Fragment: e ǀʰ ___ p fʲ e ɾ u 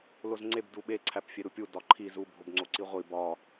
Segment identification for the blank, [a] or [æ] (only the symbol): æ